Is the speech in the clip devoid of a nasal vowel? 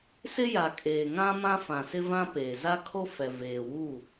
no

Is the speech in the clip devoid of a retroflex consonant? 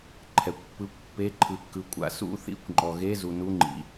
yes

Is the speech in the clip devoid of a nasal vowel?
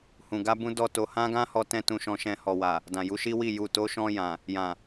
no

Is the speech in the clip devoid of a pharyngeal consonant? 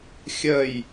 yes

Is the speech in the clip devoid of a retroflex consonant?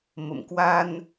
yes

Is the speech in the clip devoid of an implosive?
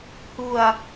yes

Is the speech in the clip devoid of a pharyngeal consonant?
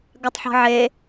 no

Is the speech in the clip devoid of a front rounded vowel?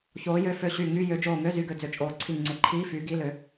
no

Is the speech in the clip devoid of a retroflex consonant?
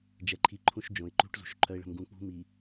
no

